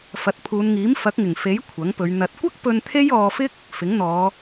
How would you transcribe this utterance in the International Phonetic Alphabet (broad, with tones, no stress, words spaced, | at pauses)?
fɐ˨˥t̚pʰuː˨˧nŋiː˨˥m fɐ˨˥k̚ŋɪ˨˩ŋfe˨˥j kʷʰɐ˨˥ŋpɵ˨˧ɥ n̪ɐ˨t̚kʷɐ˥k̚pɵ˧n t̪ʰe˥jɔː˧fɪ˥k̚ | fɪ˨˥ŋn̪ɔː˨˧